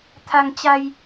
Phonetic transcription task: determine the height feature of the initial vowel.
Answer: low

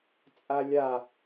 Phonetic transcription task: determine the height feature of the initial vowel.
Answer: low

